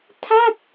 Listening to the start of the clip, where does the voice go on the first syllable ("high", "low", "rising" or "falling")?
falling